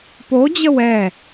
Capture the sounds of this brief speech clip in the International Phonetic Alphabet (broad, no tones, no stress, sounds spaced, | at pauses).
p o d͡ʑ ə w ɛ